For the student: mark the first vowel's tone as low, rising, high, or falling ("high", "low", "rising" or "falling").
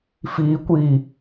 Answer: low